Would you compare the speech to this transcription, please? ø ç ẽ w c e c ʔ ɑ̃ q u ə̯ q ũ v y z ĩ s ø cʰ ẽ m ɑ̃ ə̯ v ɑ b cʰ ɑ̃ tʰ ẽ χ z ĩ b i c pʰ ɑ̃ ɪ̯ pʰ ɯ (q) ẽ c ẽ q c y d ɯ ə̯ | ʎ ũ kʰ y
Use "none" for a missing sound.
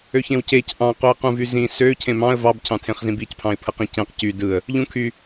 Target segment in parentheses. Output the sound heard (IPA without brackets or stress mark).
q